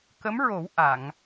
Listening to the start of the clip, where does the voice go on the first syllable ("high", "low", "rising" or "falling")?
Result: rising